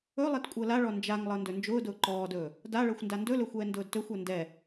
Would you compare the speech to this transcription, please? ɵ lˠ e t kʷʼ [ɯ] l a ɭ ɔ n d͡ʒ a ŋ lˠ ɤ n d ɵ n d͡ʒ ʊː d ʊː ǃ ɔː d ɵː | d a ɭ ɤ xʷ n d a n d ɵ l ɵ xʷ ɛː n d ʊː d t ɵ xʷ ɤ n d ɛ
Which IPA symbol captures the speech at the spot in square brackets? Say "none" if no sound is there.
ɤ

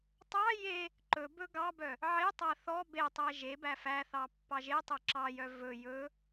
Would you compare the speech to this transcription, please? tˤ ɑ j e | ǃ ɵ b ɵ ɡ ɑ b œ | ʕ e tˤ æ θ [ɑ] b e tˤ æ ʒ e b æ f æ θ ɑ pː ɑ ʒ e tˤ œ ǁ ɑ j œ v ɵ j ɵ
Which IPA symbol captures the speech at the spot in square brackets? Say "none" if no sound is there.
ɔ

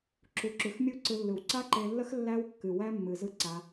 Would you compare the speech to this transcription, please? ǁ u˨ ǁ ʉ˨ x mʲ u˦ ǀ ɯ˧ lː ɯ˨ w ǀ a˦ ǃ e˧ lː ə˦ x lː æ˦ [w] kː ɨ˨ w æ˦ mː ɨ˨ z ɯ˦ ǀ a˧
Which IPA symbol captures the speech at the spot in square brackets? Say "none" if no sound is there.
w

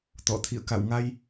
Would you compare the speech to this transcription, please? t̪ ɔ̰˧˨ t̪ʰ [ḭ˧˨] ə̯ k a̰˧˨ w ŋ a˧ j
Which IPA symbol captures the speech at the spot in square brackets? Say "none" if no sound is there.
ḭ˧˨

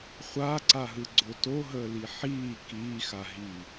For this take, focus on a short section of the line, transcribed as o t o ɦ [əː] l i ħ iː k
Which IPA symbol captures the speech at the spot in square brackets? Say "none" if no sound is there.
əː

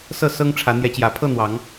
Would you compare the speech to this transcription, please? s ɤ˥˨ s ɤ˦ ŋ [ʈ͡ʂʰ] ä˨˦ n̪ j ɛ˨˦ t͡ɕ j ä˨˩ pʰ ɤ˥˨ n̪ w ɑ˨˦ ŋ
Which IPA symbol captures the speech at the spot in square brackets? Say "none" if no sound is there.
ʈ͡ʂʰ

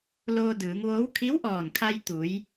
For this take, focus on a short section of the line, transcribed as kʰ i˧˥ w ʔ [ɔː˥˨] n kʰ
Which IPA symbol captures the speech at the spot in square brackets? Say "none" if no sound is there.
ɔː˧˩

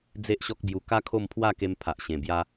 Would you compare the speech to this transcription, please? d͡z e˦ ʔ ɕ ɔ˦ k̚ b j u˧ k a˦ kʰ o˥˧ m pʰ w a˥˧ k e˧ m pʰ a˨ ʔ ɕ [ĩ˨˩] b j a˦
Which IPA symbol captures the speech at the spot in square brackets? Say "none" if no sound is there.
ẽ˨˩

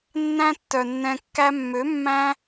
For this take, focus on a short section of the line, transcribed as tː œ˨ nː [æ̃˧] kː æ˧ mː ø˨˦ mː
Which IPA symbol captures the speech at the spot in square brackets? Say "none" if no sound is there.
ɛ̃˧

